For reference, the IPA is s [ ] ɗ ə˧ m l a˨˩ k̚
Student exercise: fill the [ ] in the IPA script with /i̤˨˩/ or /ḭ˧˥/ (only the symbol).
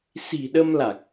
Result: i̤˨˩